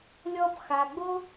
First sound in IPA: lʲ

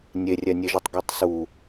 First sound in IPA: nʲ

